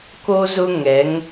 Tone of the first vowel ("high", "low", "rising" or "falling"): high